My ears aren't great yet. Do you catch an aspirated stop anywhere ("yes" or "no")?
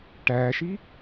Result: no